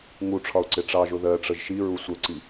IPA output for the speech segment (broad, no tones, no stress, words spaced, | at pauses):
ŋuʈ͡ʂʰɒʊ̯ǀɪ ʈ͡ʂɑʒʊ ðɜʈ͡ʂəʒ ʃiɹu sʷəǀi